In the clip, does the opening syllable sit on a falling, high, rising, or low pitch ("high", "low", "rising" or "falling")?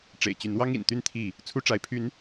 low